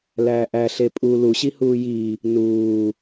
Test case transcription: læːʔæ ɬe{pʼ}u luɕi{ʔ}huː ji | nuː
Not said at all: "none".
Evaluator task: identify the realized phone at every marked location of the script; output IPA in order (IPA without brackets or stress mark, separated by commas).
pʼ, none